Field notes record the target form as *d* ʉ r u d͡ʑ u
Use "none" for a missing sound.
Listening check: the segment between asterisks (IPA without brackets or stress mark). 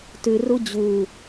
t